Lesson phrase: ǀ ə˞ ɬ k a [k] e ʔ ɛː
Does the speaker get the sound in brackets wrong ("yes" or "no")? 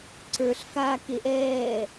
no